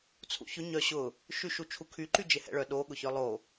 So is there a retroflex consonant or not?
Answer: yes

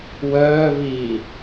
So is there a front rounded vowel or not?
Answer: yes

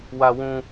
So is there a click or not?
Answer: no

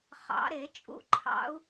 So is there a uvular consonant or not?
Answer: yes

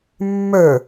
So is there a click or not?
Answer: no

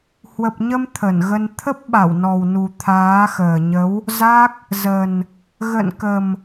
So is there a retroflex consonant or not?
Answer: no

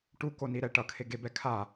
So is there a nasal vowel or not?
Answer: no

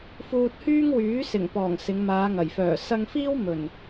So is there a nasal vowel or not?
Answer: no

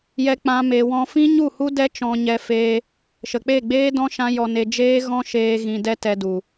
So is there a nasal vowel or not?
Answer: yes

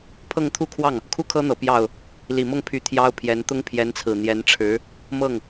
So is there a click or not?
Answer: no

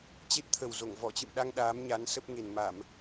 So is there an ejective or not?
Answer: no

